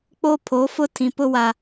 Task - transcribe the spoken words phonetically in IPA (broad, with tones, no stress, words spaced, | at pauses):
k͡po˦pʰo˨˦fʊ˦ tʰĩ˨pʊ˦wa˨